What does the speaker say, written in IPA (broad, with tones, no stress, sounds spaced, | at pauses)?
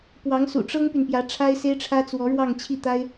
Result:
p w ɑ˧˥ ŋ s ṵ˨˩ ʈ͡ʂ ɤ˥ ŋ p y˨ n p j ä˧˥ ʈ͡ʂʰ a˥ ɪ̯ s e˥ ɪ̯ ʈ͡ʂʰ ä˥ t͡s w ɔ˧˥ ɻ w ɑ˥˧ ŋ t͡ɕʰ i˥˩ t̪ a˥ ɪ̯